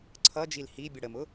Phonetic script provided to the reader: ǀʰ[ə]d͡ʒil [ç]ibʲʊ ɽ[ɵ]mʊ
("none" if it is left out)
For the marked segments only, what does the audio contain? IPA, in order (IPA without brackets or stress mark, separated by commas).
ʌ, h, ə